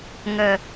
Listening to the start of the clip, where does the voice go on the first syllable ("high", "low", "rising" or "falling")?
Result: low